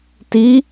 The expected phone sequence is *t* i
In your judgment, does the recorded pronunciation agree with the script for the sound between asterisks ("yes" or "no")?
yes